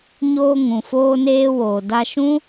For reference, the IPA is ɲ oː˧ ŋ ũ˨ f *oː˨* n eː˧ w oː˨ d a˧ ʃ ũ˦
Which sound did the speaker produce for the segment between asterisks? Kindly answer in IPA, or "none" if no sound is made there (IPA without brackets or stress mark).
oː˧